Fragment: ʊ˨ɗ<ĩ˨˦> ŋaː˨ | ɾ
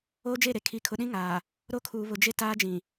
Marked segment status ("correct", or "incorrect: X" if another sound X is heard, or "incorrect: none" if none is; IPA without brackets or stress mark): incorrect: ĩ˦